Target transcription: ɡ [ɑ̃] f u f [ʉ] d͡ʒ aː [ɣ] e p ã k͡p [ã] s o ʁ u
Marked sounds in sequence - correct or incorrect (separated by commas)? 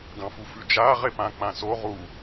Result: correct, correct, incorrect, correct